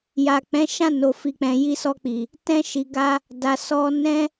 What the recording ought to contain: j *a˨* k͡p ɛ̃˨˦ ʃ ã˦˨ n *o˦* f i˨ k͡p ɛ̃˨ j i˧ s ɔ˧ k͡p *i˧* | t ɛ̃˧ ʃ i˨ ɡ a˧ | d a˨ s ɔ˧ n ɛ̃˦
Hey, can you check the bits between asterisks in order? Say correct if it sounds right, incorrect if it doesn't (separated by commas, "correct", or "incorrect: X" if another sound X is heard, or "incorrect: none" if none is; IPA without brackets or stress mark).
correct, incorrect: o˨, incorrect: i˨